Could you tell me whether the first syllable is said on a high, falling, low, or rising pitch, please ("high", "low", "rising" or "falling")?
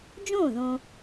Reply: falling